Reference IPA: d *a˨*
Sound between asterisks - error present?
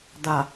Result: no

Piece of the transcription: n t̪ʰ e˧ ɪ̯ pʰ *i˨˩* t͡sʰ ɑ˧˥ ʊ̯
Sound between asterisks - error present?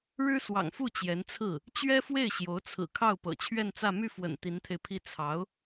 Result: yes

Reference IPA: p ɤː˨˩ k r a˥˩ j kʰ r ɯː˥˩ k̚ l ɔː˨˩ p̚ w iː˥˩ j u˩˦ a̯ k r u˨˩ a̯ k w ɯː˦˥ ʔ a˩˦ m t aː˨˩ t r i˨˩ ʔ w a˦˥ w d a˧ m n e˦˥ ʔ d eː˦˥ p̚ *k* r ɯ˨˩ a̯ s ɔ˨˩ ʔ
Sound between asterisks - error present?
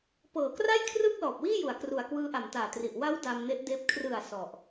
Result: yes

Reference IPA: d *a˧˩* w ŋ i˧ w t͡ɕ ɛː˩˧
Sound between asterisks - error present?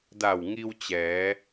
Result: no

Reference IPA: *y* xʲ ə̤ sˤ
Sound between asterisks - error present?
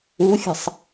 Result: yes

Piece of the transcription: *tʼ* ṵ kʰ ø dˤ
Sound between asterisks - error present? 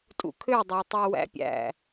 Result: no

